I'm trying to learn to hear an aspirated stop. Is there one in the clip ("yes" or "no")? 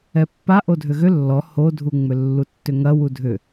no